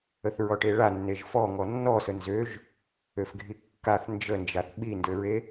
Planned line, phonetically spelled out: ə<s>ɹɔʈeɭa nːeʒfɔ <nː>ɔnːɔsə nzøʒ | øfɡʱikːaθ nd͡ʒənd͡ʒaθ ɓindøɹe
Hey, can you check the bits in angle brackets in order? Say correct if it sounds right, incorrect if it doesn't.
incorrect, incorrect

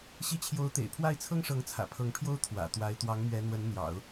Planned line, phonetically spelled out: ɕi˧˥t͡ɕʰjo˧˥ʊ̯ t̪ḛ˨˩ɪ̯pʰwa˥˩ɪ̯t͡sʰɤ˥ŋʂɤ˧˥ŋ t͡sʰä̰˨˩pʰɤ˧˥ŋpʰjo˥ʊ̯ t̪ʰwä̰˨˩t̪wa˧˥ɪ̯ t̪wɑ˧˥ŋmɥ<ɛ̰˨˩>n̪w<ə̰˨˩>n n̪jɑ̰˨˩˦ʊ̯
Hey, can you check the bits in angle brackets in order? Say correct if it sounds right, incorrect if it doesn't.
incorrect, incorrect

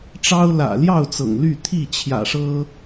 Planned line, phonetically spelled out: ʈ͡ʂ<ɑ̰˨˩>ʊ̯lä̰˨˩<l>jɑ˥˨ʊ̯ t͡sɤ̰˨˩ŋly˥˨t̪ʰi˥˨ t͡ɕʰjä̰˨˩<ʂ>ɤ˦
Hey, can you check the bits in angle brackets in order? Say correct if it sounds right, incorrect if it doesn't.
incorrect, correct, correct

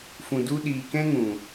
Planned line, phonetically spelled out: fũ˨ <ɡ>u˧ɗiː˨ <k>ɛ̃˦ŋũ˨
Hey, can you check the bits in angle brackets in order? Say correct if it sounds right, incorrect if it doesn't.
incorrect, correct

